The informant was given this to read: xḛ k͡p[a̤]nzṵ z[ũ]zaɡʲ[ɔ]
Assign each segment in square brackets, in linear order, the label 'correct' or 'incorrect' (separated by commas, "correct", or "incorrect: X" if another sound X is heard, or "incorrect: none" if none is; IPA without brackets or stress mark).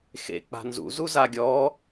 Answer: correct, incorrect: u, correct